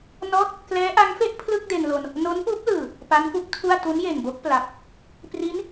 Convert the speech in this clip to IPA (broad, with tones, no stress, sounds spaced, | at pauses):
n ɔː˦˥ t̚ | k l ɛː˦˥ ʔ a˦˥ ŋ f e˥˩ ʔ pʰ l ɯ˥˩ k̚ d e˧ n l o˧ n | n o˦˥ n p uː˦˥ p̚ l ɯː˨˩ | p a˦˥ n f u˦˥ k̚ tʰ u˥˩ a̯ t u˦˥ n j e˨˩ n b o˦˥ k̚ p l a˨˩ p̚ | p r i˦˥ n